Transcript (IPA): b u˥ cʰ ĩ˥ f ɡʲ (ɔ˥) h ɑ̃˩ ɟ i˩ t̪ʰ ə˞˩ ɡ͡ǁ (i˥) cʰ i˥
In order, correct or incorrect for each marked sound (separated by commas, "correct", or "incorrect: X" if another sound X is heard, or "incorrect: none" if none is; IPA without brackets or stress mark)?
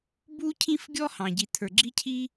correct, correct